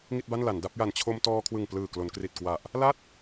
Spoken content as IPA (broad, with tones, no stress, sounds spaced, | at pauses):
ŋ i˥˩ t̚ b a˥˩ n l a˩˦ n d a˦˥ p̚ j a˨˩ n t͡ɕʰ o˧ m t ɔː˧ kʰ w ɯ˨˩ ŋ p l ɯː˨˩ k l o˩˦ n k r i˨˩ t̚ k w a˨˩ ʔ | l a˥˩ t̚